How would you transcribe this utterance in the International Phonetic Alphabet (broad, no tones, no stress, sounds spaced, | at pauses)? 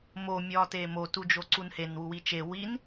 m o mʲ ɒː t eː m o t u d͡ʒ o ǀ u n h e n w u w i t͡ʃ e w i n